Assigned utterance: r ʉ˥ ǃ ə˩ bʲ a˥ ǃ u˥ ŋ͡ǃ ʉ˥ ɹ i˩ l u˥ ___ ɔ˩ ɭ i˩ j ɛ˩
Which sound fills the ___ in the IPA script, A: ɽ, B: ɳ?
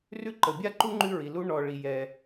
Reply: B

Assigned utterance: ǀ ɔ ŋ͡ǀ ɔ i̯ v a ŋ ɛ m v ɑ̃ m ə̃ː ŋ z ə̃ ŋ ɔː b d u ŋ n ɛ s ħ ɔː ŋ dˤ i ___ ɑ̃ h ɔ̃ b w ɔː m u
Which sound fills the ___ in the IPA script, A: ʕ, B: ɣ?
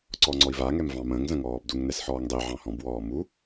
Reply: A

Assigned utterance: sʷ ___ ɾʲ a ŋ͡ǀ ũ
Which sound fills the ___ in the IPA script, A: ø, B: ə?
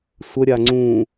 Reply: B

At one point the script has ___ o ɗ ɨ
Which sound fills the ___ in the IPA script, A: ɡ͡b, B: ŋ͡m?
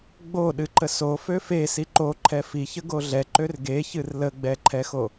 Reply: A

